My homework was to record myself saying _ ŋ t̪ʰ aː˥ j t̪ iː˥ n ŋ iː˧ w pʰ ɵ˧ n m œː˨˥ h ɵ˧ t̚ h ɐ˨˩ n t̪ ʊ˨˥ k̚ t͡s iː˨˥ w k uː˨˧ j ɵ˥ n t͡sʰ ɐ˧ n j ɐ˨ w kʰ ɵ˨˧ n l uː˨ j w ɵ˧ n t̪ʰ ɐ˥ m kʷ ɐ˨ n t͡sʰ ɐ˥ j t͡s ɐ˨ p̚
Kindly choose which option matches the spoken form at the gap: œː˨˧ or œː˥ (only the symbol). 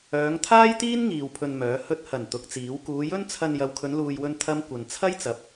œː˨˧